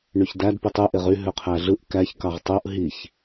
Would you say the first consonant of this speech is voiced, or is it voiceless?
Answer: voiced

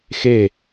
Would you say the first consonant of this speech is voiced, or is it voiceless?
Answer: voiceless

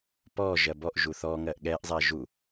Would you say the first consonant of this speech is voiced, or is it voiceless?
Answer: voiceless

